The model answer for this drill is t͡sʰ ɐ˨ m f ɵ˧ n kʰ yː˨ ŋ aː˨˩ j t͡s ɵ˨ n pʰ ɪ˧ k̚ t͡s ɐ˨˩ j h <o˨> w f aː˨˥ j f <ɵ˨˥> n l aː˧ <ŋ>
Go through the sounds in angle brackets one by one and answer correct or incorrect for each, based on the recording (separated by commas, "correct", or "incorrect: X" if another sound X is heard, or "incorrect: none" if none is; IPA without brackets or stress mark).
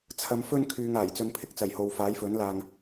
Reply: correct, correct, correct